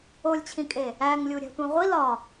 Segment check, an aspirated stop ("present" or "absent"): present